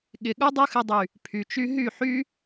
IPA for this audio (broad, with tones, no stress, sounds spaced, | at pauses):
ɠ ɪ˨ ɠ u˦ dˤ u˦ x ɪ˧ dˤ y˨ | pʰ y˨ t͡ʃ y˧ ɦ y˦˨ ħ y˦